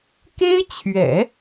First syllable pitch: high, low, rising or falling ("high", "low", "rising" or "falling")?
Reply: high